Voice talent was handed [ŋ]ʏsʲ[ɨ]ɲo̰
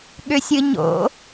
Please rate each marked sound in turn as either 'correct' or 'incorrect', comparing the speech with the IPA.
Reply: incorrect: ɠ, correct

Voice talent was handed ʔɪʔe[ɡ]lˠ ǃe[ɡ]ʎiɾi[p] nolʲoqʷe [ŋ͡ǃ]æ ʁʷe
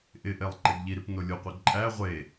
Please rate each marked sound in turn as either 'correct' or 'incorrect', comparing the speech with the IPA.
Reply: incorrect: none, correct, correct, incorrect: ǃʼ

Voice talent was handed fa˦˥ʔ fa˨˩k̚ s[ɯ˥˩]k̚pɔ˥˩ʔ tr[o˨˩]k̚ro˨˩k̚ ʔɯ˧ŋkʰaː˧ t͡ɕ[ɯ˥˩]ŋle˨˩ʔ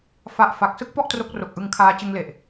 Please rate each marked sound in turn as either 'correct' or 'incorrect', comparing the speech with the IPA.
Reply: correct, incorrect: o˦˥, incorrect: ɯ˧

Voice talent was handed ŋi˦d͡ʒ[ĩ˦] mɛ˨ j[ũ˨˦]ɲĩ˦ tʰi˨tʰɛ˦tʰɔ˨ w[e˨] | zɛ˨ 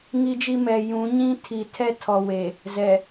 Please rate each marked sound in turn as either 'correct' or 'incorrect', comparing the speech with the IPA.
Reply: incorrect: i˦, correct, correct

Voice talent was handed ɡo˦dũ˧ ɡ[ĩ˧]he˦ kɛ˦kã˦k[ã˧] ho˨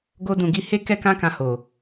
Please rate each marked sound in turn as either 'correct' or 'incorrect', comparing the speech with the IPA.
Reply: incorrect: i˧, correct

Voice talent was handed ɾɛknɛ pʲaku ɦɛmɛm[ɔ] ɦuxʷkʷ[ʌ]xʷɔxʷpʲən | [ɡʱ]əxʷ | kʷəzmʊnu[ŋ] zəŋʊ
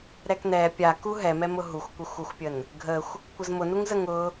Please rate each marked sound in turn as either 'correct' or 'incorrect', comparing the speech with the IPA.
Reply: incorrect: ʊ, incorrect: ə, correct, correct

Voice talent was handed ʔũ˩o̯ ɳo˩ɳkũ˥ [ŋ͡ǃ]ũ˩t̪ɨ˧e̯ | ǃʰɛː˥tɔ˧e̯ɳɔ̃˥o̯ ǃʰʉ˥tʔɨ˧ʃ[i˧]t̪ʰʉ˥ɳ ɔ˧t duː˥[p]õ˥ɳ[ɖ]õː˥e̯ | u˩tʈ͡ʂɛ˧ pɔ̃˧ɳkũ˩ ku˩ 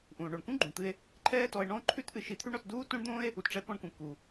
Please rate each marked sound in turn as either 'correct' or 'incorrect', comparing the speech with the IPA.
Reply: incorrect: ɡ͡ǃ, correct, incorrect: t, incorrect: d̪

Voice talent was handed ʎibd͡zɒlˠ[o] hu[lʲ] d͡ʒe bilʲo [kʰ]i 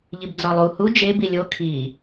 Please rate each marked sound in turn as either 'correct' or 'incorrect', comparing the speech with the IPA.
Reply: incorrect: u, incorrect: none, correct

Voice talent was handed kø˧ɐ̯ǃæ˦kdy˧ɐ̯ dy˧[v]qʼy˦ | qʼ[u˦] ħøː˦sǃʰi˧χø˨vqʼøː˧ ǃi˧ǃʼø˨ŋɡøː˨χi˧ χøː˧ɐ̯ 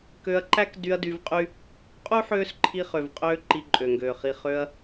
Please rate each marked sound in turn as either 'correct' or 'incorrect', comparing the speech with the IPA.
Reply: correct, correct

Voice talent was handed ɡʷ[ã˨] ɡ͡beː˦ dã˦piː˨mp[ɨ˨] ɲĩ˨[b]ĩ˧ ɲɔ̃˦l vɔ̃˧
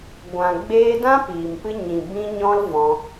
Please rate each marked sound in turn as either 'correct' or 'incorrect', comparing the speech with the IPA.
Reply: correct, incorrect: ɨ˧, correct

